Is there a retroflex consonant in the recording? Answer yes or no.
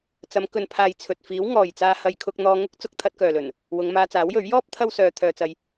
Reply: no